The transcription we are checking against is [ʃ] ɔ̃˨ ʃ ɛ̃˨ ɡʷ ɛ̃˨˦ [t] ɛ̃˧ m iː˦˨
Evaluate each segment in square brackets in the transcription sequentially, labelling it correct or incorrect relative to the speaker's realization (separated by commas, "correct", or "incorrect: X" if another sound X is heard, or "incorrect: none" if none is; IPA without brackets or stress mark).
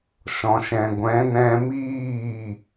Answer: correct, incorrect: n